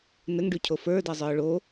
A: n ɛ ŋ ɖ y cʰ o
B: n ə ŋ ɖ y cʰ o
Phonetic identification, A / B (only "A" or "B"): B